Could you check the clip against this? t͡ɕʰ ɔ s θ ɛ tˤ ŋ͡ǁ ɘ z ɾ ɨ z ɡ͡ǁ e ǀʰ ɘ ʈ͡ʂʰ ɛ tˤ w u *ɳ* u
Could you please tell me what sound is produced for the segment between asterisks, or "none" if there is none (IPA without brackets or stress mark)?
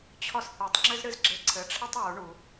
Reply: ɳ